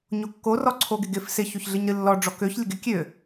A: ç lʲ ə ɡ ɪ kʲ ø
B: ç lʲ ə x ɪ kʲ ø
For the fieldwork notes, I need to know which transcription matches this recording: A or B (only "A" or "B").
A